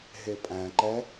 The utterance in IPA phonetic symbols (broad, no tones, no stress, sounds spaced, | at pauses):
ɦ e pʼ æ̃ ǃ ɛ